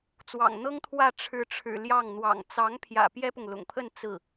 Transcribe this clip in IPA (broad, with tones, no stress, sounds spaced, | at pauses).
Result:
t͡s w ɑ̰˨˩ ŋ n̪ ɤ˥ ŋ t̪ʰ w ä˥˩ ʈ͡ʂʰ ɻ̩˧˥ ʈ͡ʂʰ ɻ̩˨˩ l j ɑ˥˩ ŋ n̪ w ɑ̰˨˩ ŋ t͡s ɑ˧˥ ŋ pʰ j ä̰˨˩ p j ɛ˥ p ʊ˨ ŋ l ʊ̰˨˩ ŋ pʰ ə˥˧ n t͡s ɹ̩˥˩